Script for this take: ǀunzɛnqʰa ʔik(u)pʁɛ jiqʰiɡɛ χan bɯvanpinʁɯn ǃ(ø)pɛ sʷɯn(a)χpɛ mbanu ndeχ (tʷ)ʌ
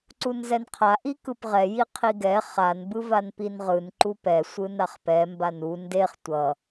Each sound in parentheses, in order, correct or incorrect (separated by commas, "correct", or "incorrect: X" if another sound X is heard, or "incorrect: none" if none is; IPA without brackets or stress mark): incorrect: ɯ, incorrect: u, correct, correct